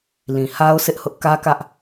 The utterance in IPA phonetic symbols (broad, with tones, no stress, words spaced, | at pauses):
lĩ˨ha˦ʊ̯ sʰɪ˦ʔhʊ˦ʔ kä˦kä˦ʔ